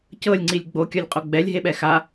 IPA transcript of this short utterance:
c ɤ lʲ ŋ͡ǀ i lʲ ɡ͡b o kʲ ɔ lʲ qʼ o ɡ͡b ɛ lʲ ɦ e ɓ ɛ x a

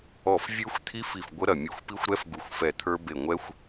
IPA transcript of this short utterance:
ɔ˧˩ f vʲ ə˞˦˥ xʷ t̪ʰ i˦˥ f i˧˩ f ɡʷ ə˦˥ ɾ ɐ˧˩ mʲ u˧˩ xʷ p i˦˥ xʷ ɾ ɛ˦˥ f ɡ u˧˩ xʷ f ɛ˧˩ t̪ʰ ə˞˦˥ b e˧˩ ŋʷ ɛ˦˥ xʷ

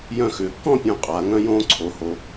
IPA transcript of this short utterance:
j œ̃˧˩ x ʏː˩˧ kː ɔ̃˥˨ pʲ õ˧˩ qʼ a˩˧ ŋ œ̃˦ j õː˦ ǀʰ o˩˧ h o˩˧

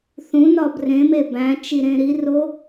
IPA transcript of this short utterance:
θ ũ n ɒ b r ẽ m e b æ̃ t͡ʃ i ɾ ẽ ɾ i r o

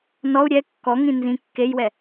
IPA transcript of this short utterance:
n ɔ u̯ ɾʲ ɛ kː ɔ ŋ ĩ n z ĩ kː e j w ɛ

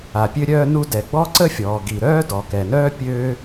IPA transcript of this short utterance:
a˩ pʲ ø˥ ɾʲ œː˥ n u˥ d ɛ˩ ɡ͡b ɔ˥ ǀ ə˥ fʲ ɔː˩ ɡ i˩ ɾ œː˥ d ɔ˩ k ɛ˩ n œː˥ pʲ øː˥

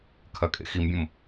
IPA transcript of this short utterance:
kʰ ɐ kʼ ḛ x i m bʲ õ m

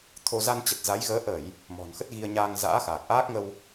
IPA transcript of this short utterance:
t̪ʰ o˧ z a˧ n t͡ɕ ə˨˩ t̚ z a˨˦ j ɣ əː˨˦ ʔ ə˧˩˨ j | m ɔ̤˨˩ n x ə˦˥ t̚ ɣ i˧ ə̯ ɲ aː˧ ŋ z a̰ː˧˥ x aː˨˩ k̚ ʔ aː˦˥ k̚ ŋ ə˧ w

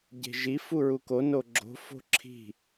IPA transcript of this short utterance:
ɟ e̤ ʒ i f u ɹ u k o n o ɡ͡ǁ o̤ f o̤ ǁʰ i̤

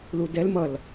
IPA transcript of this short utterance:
l u d ɛ l m ʌ l

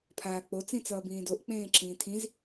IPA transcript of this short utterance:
pʰ aː k͡p o t͡s ĩ t͡s ʌː b ĩː d o ʔ k͡p ẽː ǁʰ ĩː tʰ ĩ z

